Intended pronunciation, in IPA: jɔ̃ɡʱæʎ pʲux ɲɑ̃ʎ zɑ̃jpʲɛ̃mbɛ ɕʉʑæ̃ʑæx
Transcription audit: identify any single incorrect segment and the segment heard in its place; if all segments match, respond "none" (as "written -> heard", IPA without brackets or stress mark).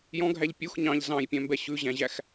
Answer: none